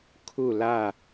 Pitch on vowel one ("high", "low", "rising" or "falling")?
falling